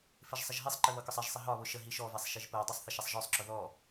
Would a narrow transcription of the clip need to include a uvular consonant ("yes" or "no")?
no